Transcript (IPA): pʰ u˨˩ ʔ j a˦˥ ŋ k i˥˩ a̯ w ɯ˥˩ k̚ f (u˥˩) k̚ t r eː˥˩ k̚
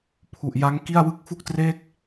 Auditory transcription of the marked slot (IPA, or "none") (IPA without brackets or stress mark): u˥˩